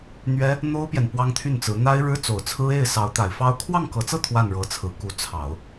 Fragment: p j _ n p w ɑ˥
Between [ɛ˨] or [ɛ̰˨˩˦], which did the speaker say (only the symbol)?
ɛ˨